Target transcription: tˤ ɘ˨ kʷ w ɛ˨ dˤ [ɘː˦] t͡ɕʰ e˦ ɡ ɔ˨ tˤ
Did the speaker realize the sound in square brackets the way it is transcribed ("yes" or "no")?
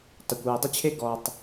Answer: no